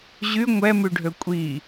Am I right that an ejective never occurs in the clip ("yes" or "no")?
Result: no